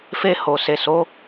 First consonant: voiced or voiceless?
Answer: voiceless